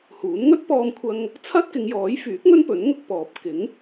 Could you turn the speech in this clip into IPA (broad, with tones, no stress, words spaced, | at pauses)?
huː˨˥n ŋɵ˥t̚pɔː˧mkʷʰɐ˧ŋ | t͡sʰɐ˥t̚ kɪ˨˧ŋjɔː˨˥jfyː˨˥k̚ŋɵ˥n pɵ˨˥nŋʊ˧k̚pɔː˨p̚ kɪ˨˥ŋ